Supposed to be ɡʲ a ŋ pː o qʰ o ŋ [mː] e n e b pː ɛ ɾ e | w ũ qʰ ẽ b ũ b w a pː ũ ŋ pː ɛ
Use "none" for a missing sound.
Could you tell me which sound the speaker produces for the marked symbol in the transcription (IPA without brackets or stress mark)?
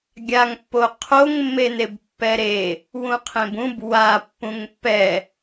mː